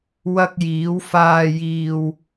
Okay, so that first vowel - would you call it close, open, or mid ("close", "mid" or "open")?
open